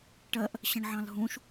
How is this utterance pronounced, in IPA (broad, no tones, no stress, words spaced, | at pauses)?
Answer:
ʈɜʔ | ɕə̃ɳʕɑ̃lɦũʃ